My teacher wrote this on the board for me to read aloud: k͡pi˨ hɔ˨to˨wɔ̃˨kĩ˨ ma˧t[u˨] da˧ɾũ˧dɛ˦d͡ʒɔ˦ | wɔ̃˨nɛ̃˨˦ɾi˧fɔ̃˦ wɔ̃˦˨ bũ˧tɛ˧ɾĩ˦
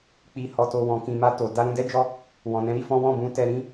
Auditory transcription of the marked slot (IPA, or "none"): o˨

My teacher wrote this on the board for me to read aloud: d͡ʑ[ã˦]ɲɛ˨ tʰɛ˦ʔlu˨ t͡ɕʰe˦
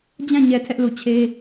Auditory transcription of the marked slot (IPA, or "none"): ã˦˨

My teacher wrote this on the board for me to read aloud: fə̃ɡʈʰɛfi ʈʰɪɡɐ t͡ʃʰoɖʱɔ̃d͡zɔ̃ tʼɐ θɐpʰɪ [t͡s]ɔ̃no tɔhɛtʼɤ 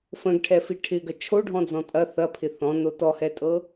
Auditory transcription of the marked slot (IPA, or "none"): θ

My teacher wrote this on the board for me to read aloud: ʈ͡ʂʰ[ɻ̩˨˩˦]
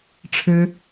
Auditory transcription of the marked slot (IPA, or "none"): ɻ̩˥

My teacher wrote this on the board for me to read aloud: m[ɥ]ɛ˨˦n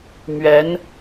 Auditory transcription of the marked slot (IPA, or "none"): ɥ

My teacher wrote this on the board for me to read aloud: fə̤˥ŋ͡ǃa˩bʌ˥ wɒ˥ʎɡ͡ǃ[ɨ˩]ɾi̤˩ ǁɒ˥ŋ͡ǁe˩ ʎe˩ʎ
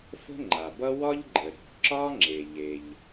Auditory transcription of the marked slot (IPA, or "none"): ə˩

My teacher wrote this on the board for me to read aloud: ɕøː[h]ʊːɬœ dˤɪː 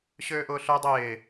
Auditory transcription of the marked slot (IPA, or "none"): ʔ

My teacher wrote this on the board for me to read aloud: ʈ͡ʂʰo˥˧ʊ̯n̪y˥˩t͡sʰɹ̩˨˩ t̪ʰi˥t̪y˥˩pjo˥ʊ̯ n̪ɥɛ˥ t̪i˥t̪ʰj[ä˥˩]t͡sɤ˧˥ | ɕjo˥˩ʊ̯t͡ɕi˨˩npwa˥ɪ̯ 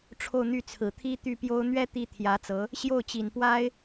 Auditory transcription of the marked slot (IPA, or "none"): ä˧˥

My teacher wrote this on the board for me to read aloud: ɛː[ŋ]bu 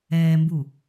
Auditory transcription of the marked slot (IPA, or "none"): m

